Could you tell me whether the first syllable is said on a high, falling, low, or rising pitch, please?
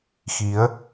rising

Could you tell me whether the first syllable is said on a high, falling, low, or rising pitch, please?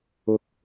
low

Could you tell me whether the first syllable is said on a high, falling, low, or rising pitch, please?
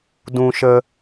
high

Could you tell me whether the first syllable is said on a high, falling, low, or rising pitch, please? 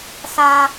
high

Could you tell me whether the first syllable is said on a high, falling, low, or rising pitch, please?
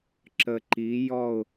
low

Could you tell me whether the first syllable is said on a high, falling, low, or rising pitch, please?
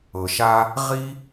low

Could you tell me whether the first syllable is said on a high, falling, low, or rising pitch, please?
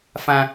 high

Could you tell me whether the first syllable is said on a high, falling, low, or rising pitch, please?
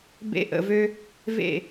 high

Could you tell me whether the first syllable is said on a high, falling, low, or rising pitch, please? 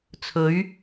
rising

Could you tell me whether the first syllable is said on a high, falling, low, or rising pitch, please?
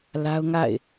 high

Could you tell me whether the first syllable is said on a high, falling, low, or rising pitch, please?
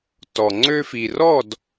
low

